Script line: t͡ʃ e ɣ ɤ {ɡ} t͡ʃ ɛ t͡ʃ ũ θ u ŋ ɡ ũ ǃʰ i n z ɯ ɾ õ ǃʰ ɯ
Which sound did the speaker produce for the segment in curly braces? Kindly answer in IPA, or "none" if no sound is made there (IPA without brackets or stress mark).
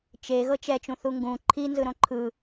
none